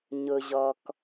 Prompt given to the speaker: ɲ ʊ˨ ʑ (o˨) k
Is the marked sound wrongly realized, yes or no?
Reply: yes